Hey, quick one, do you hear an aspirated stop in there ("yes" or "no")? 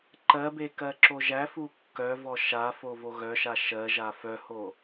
no